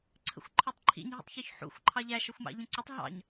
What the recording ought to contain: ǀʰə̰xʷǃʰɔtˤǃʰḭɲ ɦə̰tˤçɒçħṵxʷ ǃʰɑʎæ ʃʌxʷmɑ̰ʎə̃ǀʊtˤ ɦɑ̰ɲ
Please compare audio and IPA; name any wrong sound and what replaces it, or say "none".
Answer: none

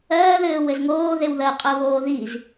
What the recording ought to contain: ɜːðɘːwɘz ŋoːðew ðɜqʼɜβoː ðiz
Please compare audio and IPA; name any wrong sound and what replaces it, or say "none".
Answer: none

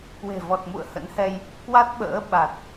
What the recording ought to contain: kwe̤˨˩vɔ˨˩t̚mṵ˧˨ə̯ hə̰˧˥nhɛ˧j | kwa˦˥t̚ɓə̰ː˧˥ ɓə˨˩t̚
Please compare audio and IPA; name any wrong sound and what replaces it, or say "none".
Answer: ə˨˩ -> a˨˩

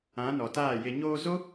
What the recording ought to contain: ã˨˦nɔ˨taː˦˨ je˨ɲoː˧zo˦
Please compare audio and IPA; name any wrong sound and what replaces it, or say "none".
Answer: none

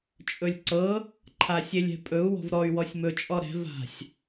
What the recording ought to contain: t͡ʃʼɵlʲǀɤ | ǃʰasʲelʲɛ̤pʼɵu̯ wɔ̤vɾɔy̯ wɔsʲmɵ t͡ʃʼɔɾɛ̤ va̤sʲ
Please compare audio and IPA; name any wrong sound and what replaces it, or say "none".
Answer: none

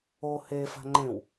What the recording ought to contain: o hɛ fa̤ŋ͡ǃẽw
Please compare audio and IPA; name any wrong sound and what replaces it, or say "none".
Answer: ɛ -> e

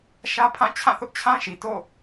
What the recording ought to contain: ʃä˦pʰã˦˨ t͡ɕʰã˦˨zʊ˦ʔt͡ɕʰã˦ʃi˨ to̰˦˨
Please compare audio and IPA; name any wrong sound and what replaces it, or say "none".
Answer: z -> θ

